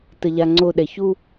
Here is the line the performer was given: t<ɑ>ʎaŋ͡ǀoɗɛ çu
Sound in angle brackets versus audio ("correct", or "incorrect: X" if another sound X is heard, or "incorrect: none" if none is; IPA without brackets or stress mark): incorrect: ə